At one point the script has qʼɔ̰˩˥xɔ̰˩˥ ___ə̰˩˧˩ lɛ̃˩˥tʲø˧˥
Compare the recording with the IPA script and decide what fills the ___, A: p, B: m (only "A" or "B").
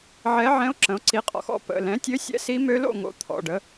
A